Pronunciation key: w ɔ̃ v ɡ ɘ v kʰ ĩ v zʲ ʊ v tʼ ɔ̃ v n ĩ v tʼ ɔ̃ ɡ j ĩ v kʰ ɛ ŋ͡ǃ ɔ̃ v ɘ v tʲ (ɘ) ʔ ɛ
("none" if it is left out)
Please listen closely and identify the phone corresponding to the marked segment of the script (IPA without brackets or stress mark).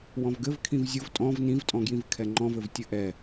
ɘ